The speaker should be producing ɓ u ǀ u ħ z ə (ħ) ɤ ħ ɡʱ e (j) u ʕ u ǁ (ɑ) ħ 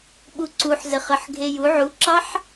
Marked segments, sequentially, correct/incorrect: incorrect, correct, correct

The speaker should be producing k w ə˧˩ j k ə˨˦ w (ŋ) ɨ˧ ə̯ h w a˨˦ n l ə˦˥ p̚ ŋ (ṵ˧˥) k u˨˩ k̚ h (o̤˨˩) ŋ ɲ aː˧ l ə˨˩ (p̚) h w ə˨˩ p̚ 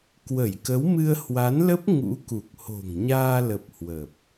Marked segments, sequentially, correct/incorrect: incorrect, correct, correct, correct

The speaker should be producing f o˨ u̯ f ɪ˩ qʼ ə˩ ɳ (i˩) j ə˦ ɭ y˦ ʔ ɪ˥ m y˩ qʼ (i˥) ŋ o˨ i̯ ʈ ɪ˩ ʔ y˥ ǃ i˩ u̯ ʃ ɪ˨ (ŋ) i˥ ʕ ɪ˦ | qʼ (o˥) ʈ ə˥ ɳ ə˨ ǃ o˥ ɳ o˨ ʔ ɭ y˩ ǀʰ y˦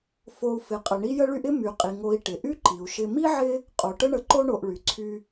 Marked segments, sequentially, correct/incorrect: incorrect, incorrect, incorrect, incorrect

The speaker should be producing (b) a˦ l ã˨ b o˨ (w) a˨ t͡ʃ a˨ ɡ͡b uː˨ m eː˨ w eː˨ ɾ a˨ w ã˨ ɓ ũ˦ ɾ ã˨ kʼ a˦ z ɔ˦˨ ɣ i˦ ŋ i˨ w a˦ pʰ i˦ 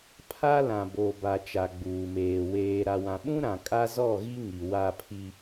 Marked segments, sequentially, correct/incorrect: incorrect, incorrect

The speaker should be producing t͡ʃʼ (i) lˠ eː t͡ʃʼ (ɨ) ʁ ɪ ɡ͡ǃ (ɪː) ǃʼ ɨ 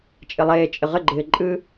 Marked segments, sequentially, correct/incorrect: incorrect, incorrect, correct

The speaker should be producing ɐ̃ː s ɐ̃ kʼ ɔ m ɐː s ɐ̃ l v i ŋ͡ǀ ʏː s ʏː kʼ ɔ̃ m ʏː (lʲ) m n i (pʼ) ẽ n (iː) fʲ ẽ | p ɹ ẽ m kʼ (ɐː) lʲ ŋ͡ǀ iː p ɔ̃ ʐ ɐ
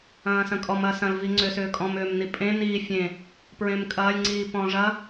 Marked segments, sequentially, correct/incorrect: incorrect, correct, correct, correct

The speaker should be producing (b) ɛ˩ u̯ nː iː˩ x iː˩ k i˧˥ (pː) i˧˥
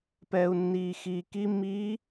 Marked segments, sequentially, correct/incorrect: incorrect, incorrect

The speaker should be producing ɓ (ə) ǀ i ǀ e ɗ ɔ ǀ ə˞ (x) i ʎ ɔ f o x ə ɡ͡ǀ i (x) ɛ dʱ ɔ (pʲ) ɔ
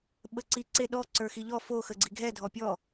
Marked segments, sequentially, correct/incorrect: correct, correct, incorrect, correct

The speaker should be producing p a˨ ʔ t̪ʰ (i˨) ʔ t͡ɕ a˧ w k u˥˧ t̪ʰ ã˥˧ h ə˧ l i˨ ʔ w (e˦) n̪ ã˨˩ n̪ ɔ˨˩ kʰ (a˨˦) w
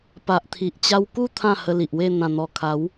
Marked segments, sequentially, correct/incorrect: correct, incorrect, correct

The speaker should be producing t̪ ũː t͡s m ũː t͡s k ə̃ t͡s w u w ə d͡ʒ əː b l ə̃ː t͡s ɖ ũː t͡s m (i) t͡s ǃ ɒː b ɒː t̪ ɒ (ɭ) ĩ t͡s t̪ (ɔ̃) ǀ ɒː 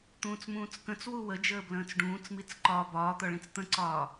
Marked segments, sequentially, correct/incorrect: correct, correct, incorrect

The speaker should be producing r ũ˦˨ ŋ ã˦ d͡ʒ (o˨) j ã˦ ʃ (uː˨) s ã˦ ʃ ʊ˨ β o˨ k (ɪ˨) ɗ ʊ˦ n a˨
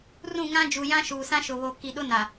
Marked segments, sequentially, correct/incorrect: incorrect, correct, incorrect

